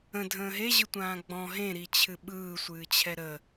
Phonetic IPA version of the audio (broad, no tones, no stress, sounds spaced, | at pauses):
ə̃ dʱ ə̃ː ɦ e ʑ ɯ tʷ ãː ɡ͡b ɔ̃ ɦ ẽ ɾ i t͡ɕʰ ɨ ɓ ɯː sʷ ɨː t͡ɕʰ ɛ ɾ ə